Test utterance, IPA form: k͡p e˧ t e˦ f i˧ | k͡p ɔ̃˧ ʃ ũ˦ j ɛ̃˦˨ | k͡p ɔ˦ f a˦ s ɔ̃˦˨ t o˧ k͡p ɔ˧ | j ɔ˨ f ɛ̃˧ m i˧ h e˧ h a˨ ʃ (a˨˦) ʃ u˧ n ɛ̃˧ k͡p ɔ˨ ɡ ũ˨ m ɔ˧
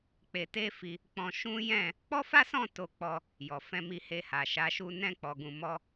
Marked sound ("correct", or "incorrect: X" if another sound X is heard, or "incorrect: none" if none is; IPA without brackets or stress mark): correct